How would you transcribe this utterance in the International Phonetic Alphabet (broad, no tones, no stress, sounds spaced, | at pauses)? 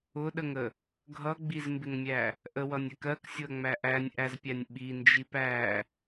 ʊ ɗ ə ŋ ə | ɡʱ ʌ ɡ͡b i z m b ɪ ŋ mʲ æ | ʔ ə w ʌ nʲ ɛ k ɜ k sʲ ʊ ɐ̯ ŋ͡m æ ʔ æ nʲ ʔ æ z pʲ æ nʲ ɓ i n d͡ʒ i p æ